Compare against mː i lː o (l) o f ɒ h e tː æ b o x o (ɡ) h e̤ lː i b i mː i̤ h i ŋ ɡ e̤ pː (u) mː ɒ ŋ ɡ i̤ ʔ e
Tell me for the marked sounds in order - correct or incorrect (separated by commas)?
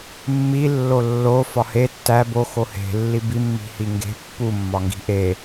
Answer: incorrect, incorrect, correct